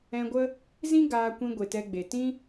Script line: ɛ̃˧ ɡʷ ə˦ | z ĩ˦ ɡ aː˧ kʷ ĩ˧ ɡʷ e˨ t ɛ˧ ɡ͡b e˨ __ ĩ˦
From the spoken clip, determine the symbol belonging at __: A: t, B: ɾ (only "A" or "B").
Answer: A